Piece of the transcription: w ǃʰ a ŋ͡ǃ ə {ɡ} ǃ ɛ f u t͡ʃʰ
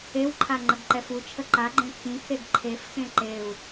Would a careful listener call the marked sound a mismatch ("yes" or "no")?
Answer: no